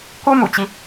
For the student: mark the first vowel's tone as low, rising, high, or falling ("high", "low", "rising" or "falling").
high